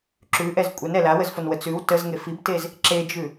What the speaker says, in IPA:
ǁ ʉ ʔ ɛ z kʷʼ ɛ n ɛ l a w ə z f o n w ə t͡s ʉ w t ə z ŋ e f i b t e z | ǁ e d͡ʒ ʉ

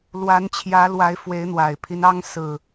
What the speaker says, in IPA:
l w a˨˦ n t͡ɕʰ j ä˨˦ l w a˨˦ ɪ̯ f w e˨˦ ɪ̯ n̪ w a˨˩ ɪ̯ pʰ i˦ n ɑ˦ ŋ s ɹ̩˨˩

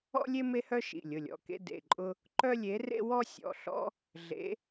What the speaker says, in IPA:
ɔ̰˦ lʲ e˦ m e˦ h œ˦ ʃ ḭ˩˧˩ lʲ ʊ˩˧˩ lʲ ɔ̰˩˧˩ k ḛ˦ d ḛ˩˧˩ ǃʼ ʊ˦ | ǃ œ˦ lʲ e˨˦ r ḛ˦ w ɔ˦ sʲ ɔ̰˩˧˩ ɬ ɔ̰˦ | ɮ ḛ˨˦

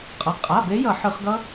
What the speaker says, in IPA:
qʼ ʌ˩˧˩ qʼ a˩˧˩ b e˨˦ j ʌ˧˩˧ ħ ɯ˧˩˧ χ ɡ ʌ˦˥

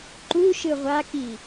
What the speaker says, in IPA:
ǃ u ʃ ɯ ʁʷ a k i

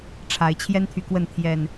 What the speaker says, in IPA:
ʈ͡ʂʰ a˨˦ ɪ̯ t͡ɕʰ j ɛ˦ n t̪ʰ y˨ k w ə˥˨ n t̪ʰ j ɛ˨˩ n

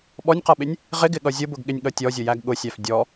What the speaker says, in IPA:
ɓ ɔ nʲ q ʌ ɓ ɪ nʲ | ʁ ɪ ɡ ɪ ɠ ʌ zʲ ʊ b ʊ ɡ ɠ ɪ nʲ ɠ ʌ tʲ ɔ zʲ ʊ j æ ɡ ɠ ʊ sʲ æ f dʲ ɔ

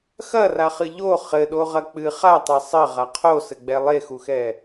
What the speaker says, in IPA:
x ɐ r a χ ɨ ʎ o χ ɘ ɗ o ʁ ɐ k͡p ɨ χ a tˤ e sˤ ɘ ʁ a qʰ o s ɘ ɡ͡b ɛ lˠ e x u x ɛ

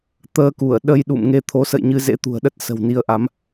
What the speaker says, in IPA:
t̪ əː˧ k u˧˩ ə̯ ɗ ə˧ j ɗ ṵ˧˨ m ŋ e˧ t̪ʰ o˨˦ s ə̰˧˨ j ɲ ɨ˧ z ḛ˧˥ t̪ ṳ˨˩ ə̯ ɗ ə˦˥ t̚ s ə̤˨˩ w n i˧ ə̯ ʔ a˨˦ m

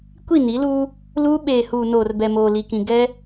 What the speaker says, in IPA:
kʷ i˦˨ n i˨˦ l uː˦ | l uː˦ ɓ eː˨ h uː˨ n oː˨ r b ɛ˨ m oː˨ l i˨ k ĩ˨ ɡ ɛ˦

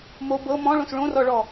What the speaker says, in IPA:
m o b ɤ m ɔ̃ ɭ õ s ɭ õ r ɔ ɭ ɔ

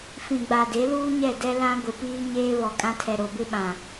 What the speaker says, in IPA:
f ĩ˨ ɡ͡b a˨ d e˨˦ l uː˦ ɲ ɛ˦˨ d ɛ˦ l ã˦ ɡʷ ɪ˨ p iː˦ ɲ eː˦ β ɔ˨ kʼ ã˦ tʰ ɛ˨ ɾ o˨ b ɪ˦ ɓ ã˨

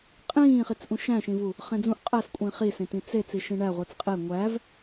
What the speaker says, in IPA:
qʼ ĩː χ i t͡s ʔ ũ ʃ æ̃ ʃ ĩ v u | χ ẽ d͡z ũ ʔ qʼ æ s kʷʼ ĩː χ i s ẽ t ĩ t͡s e t͡s i ʃ ĩ ɳ æ ʁʷ i t͡s qʼ e ŋʷ æ v

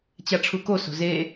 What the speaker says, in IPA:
t͡ɕ a ʈ͡ʂʰ u k o s o̤ z e

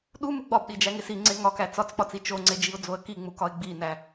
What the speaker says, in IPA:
ɗ u m u ɡ͡b ɒ b ɗ i d͡ʒ æ ŋ e s i ŋ͡ǀ e ŋ ɒ k æ t͡s ɒ t͡s k͡p ɒ t͡s i t͡ʃ o ŋ͡ǀ e d͡ʒ i ʊ̯ d͡z o ə̯ k i ŋ͡m u k ɒ ɪ̯ ɡ͡b i n æ

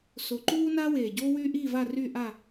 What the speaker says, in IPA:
s o˨˩ ǃ uː˦ n aː˦ w eː˨˩ ɟ oː˦ w yː˦ ʔ iː˦˨ v a˦˨ r yː˦˨ ʔ a˦˨

